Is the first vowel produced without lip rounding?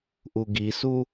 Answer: no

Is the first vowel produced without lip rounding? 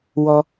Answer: no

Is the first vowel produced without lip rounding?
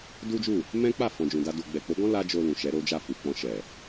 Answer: no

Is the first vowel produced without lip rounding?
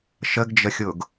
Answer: yes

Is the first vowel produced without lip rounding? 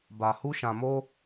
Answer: yes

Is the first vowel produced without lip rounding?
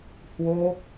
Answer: no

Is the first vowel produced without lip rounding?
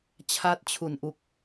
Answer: yes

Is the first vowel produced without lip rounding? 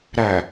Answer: yes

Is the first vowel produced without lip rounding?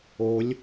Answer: no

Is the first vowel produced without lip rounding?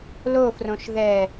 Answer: no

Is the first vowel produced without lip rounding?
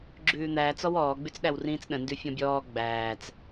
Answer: no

